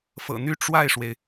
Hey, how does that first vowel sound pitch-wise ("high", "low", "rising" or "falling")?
low